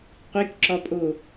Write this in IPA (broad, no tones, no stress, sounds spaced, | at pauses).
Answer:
qʷ i k ǁ ɒ pʼ o